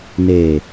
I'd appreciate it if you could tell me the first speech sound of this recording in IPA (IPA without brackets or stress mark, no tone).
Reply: n